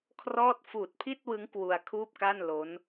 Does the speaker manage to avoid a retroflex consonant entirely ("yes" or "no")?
yes